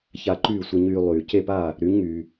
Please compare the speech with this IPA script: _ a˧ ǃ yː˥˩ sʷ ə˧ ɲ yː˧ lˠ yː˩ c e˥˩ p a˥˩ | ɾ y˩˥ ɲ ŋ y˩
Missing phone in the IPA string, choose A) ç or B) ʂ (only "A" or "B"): A